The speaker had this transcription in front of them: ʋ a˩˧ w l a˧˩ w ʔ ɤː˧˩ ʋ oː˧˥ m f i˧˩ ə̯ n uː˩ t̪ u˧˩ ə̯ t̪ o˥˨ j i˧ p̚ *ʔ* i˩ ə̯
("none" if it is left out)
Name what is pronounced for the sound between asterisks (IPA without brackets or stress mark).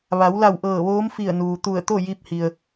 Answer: h